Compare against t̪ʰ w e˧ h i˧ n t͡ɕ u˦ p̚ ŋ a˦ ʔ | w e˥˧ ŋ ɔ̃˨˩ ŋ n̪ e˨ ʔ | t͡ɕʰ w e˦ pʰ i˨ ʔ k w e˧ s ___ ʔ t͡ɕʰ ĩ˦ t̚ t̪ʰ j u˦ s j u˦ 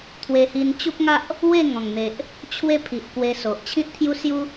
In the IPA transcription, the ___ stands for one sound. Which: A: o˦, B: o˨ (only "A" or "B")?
B